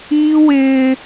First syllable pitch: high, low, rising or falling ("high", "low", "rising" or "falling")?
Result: high